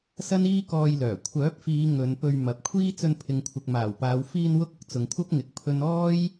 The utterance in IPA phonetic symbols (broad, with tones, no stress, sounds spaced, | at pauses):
s ɐ˥ n iː˥ k ɔː˧ j l œː˨˩ kʷʰ œː˨˥ p̚ f iː˨˧ ŋ ɵ˨˧ n p ɵ˧ ɥ m ɐ˨ p̚ kʷʰ iː˥ t͡s ɵ˧ n pʰ ɪ˨ ŋ kʷʰ ɪ˨ k̚ m aː˨˩ w p aː˨˧ w f iː˧ n w ʊ˧ k̚ ʊ˨˥ k̚ t͡s ʊ˨ ŋ kʷʰ ɐ˥ p̚ ŋ ɪ˧ k̚ pʰ ɵ˥ n ɔː˥ j